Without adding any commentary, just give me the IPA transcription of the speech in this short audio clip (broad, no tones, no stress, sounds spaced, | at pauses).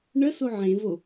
ɳ ə s o ʕ ẽ v o